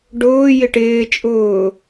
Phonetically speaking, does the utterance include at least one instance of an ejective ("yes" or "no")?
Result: yes